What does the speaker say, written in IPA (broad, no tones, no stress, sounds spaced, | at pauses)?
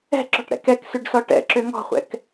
ɛ̤ ǁ ɔ̤ ʈ ɽ ɛ̰ k ɛ k s ø ɖ s ɔ ʈ ɛ̰ ǁ ø ŋ ɔ̤ χʷ ɛ̰ k